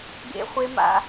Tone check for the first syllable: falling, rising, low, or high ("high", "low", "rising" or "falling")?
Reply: high